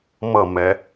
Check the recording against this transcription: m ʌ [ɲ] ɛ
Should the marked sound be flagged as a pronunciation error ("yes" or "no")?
yes